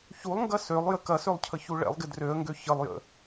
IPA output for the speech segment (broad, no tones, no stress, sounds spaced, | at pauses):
ç u lˠ ŋ ɡ ɐ s ø lˠ j ə k ɐ s ø lˠ cʰ ə ç u ɭ ɛ̰ lˠ ɡ ɪ d r ø ə̯ ŋ ɡ ø ç ə lˠ j ə̰